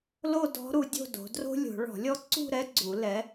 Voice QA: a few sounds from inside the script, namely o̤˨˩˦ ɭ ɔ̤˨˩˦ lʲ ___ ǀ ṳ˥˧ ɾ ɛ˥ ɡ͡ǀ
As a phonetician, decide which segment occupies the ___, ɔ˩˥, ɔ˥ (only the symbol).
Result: ɔ˥